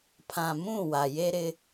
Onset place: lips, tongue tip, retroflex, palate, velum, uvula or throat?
lips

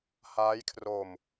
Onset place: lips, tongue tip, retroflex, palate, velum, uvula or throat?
throat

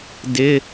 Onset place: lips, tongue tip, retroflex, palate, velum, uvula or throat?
tongue tip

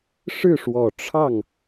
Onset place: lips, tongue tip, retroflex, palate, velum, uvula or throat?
retroflex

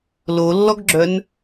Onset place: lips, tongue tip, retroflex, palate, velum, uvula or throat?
tongue tip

